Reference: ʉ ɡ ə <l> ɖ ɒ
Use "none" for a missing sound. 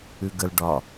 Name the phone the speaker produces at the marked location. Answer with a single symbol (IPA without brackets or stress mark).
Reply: l